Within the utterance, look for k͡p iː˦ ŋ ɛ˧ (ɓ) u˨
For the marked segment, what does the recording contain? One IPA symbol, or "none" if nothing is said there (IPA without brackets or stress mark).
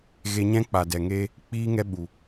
ɓ